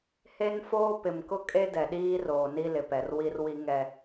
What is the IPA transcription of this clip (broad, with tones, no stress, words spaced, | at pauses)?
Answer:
he˦n foː˦ pɪ˨mkʊ˦kʼe˦ dɛ˨ɗiː˦roː˨ni˦ lɪ˨pɛ˨r wi˦rwi˦ŋɛ˦